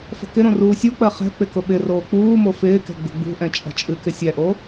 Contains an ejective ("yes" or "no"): yes